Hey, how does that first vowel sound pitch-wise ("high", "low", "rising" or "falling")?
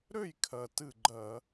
falling